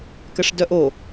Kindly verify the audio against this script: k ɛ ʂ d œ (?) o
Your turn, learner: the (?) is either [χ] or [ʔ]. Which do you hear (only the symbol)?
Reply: ʔ